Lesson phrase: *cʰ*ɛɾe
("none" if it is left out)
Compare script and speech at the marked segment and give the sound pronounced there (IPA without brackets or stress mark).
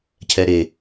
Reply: cʰ